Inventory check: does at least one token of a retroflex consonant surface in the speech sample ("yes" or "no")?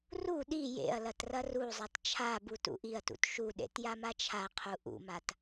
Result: no